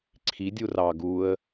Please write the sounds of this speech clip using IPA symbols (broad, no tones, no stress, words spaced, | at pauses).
ǀʰidʲu rɑ ɡuə̯